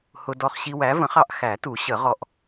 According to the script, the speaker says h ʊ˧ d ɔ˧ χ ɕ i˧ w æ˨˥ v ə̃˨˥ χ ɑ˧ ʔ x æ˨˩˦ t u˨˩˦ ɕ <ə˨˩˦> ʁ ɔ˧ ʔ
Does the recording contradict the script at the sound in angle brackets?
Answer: no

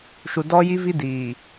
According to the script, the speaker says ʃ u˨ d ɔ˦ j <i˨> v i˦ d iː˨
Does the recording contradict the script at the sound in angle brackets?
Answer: yes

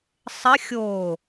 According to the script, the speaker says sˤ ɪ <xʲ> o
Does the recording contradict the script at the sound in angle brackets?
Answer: no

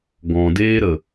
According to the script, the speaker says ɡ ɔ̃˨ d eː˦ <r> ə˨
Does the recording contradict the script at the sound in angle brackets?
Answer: yes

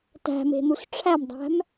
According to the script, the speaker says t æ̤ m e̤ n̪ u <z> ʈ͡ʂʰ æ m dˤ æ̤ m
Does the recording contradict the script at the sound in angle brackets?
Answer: yes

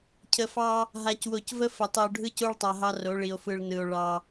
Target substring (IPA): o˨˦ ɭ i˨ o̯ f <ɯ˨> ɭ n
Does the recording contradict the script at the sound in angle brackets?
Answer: no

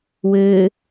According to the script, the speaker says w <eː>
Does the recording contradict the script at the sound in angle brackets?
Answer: yes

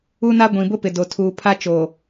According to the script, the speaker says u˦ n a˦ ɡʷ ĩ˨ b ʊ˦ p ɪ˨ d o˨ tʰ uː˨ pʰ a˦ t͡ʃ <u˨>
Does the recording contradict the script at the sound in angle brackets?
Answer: yes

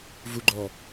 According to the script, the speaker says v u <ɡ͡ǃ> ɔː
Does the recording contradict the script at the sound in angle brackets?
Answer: no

